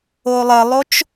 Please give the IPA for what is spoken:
o lˠ ə lˠ o t͡ʃ

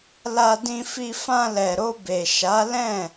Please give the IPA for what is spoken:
l a˧ d ĩ˧ f i˧ f ã˧ l ɛ˨ ɾ o˧ b e˨ ʃ a˨˦ l ɛ̃˦˨

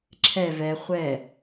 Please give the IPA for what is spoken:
ǁʰ ɛ v ɛ χʷ ɛ

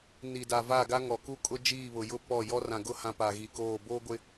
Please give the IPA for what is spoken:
n i˨ d a˨ v a˦˨ ɡ a˦ ŋ ɔ˨ k u˦ kʼ ʊ˦ d͡ʒ iː˦˨ β ʊ˨ j ʊ˦ p ɔ˦˨ j ɔ˦ r ã˨ ɡ ʊ˦ h ã˦ p a˨ ɣ i˨ k oː˦˨ b oː˦ ɡʷ ɪ˦

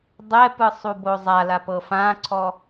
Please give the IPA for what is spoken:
dˤ ɛ p ɯ sˤ u b o zˤ a l a p ɤ f ã ǀʰ ɔ

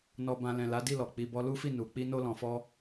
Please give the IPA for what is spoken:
n ɔ˨ b ã˨ l ɛ̃˨ l a˨˦ d i˦˨ l ɔ˨ k͡p i˨ b ɔ˧ l u˦ f i˦˨ n u˨ k͡p i˧ n o˧ l ɔ̃˨ f ɔ˧

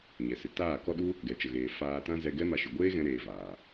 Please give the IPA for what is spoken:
ɲ ɛ˨ s ɨ˨ t aː˦˨ k ɔ˦ ɗ u˦ | ɡ ɛ˨ t͡ʃ ə˨ ɣ eː˨ f aː˧ t ã˦ z ɛ˧ ɡ ɛ˦ m a˧ ʃ ɨ˨ ɡʷ eː˦ ɣ ɛ̃˦ ɾ eː˧ v aː˨

